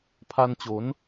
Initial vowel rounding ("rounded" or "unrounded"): unrounded